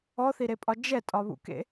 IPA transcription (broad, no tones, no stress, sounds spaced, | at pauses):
ɔ θ i ɾ e pʼ ɒ d͡ʒ ɛ tʼ ɒ β ṵ k ḛ